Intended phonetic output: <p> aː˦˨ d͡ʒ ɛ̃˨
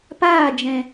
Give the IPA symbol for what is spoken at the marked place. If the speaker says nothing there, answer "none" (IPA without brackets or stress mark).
p